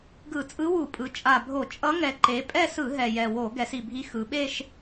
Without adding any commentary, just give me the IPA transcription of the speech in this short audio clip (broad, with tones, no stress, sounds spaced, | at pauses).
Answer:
ɡ ɯ˧˩˧ t͡sʼ ɯ˧˥ w u˧˩˧ pʼ ɯ˩˧ t͡ʃʼ a˨˩ bʱ o˧˩˧ t͡ʃʼ ʌ˧˥ ŋ ɛ˨˩ ǃ e˩˧ pʼ ɛ˥˧ s ɯ˧˩˧ ɦ ɛ˨˩ j ɛ˨˩ w o˧˩˧ ɡ ɛ˧˩˧ s i˨˩ bʱ i˧˥ x ɯ˩˧ ɓ e˥˧ ʃ